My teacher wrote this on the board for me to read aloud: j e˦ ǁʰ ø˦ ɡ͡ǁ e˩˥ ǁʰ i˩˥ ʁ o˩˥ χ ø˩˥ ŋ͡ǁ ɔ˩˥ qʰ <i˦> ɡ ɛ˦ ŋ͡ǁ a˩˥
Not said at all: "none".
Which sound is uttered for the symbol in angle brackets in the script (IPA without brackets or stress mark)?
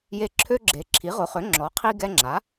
i˦